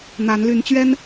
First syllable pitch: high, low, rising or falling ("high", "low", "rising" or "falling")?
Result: rising